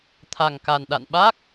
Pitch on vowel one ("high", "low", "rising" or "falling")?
low